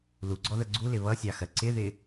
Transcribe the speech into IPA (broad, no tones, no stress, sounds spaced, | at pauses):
l u ɡ͡ǀ ɔ ð ə ɡ͡ǀ u l ɪ β ʌ sʲ ɑ x ɜ ǀ ɪ ð ɪ